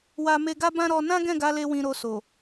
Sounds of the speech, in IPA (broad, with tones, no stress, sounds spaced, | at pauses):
w a˧ m e˧ ɡ a˦ b ã˦ ɾ ɔ˧ n ã˦ ɡ ɛ̃˦˨ ɡ a˨˦ l e˧ w ĩ˧ ɾ o˧ s o˨